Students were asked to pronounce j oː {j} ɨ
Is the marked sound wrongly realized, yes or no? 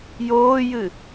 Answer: no